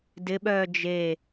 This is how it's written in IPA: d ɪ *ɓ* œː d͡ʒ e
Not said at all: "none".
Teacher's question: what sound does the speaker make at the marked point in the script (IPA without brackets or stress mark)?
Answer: ɓ